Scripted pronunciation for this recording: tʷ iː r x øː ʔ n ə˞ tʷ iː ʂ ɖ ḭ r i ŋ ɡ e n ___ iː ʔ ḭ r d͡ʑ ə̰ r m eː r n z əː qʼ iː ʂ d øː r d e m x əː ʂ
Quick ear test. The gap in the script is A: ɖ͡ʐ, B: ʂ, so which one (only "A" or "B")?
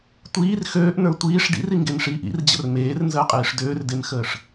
B